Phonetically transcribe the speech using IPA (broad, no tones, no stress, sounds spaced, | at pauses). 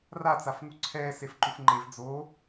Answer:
r a t͡s a f ŋ u ǀʰ ɛː s e f ǃ u f ŋ͡ǃ e v d͡z oː